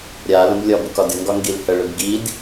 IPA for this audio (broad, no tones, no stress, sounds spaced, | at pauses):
ɾʲ a l ə̃ b lʲ ɒ b ə k ɒ d ɪ ŋ ɡ ɒ ŋ ɡ i l h ə ɭ ɪ b ɡ i d